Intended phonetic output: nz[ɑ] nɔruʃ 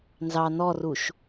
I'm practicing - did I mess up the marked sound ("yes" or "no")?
no